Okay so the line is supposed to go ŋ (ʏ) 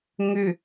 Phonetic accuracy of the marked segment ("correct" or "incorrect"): correct